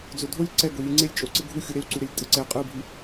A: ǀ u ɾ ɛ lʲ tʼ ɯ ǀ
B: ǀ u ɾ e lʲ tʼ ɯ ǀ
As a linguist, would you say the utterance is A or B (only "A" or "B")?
B